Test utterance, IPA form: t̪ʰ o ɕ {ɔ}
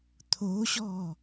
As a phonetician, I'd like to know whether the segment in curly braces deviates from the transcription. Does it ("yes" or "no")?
no